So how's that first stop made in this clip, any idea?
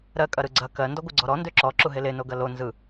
ejective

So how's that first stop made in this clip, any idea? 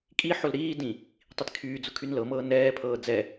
ejective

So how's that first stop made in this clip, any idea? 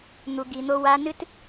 plain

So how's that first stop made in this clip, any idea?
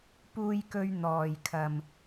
plain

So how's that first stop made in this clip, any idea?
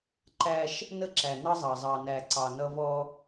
click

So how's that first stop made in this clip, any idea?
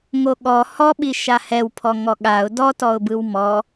implosive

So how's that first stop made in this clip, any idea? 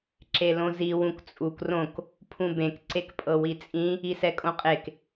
click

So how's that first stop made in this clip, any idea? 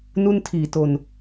aspirated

